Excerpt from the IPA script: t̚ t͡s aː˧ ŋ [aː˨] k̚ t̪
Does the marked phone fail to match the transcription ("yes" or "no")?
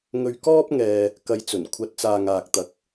no